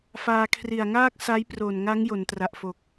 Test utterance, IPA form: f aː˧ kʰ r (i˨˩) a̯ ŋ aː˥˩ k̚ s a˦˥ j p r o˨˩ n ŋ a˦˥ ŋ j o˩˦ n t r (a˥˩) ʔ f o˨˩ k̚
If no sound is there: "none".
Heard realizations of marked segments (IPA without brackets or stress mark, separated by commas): i˨˩, a˨˩